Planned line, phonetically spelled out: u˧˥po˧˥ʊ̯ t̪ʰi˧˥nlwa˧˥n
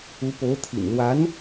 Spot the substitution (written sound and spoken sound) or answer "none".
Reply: i˧˥ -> ḭ˨˩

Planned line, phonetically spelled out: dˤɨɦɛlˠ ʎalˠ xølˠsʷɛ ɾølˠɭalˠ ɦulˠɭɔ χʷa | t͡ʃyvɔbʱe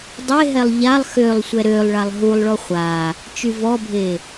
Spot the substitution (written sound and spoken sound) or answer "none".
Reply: ɨ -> e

